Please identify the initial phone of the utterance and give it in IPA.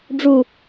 ɖ͡ʐ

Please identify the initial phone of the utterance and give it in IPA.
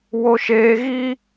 w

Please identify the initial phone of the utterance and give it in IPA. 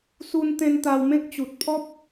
s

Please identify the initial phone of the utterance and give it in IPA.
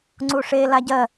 ŋ͡ǀ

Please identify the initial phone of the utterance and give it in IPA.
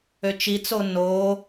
ø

